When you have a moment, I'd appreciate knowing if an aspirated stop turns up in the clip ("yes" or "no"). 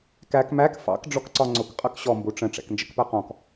no